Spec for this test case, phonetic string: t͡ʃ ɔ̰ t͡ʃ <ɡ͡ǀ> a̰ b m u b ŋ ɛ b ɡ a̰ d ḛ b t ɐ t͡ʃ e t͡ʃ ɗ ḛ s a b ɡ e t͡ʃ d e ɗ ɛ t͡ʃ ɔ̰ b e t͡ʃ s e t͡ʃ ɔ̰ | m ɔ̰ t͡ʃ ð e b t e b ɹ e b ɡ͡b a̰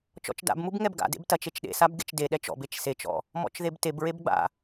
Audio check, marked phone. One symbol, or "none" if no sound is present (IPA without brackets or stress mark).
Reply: d